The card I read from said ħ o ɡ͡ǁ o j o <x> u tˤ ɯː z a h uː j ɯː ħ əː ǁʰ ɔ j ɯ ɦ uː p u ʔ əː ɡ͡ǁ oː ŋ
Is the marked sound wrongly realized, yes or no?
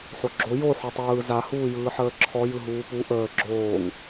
yes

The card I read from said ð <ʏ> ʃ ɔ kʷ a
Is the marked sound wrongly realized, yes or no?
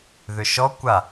no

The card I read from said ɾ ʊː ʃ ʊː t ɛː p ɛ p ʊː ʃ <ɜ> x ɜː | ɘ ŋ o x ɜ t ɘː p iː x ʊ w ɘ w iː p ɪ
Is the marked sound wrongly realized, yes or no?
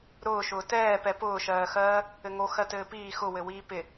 yes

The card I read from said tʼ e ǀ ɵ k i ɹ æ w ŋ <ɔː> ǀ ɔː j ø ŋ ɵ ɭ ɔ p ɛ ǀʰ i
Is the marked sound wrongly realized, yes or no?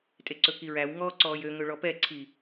no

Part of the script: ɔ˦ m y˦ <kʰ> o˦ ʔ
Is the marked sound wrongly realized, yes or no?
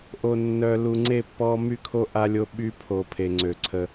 no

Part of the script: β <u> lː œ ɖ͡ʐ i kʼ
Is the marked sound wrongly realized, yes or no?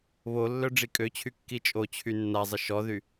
yes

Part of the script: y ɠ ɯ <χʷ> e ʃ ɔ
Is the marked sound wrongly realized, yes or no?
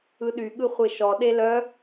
no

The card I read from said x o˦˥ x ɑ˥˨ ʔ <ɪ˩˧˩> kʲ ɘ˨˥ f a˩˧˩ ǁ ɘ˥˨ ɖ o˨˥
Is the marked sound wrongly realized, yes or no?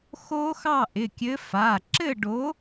no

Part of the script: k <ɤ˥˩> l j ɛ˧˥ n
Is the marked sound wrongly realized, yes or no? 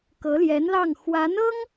yes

